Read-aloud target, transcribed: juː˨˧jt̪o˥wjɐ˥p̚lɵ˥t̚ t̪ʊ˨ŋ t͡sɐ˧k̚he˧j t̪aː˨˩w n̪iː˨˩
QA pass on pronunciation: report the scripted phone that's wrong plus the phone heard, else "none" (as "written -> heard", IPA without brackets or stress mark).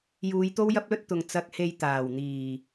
none